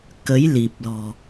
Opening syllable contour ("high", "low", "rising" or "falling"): rising